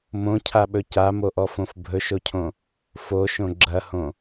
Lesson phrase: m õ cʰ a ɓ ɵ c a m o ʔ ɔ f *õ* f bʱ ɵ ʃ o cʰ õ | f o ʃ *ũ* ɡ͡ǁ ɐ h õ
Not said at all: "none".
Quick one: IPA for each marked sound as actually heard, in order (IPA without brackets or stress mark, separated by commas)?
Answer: õ, õ